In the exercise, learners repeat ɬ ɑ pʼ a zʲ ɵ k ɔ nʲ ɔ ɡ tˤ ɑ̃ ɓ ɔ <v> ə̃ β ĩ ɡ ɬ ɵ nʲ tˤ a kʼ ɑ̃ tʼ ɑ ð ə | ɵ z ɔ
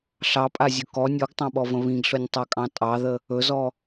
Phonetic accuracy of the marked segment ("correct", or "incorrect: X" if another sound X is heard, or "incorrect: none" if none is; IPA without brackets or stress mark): correct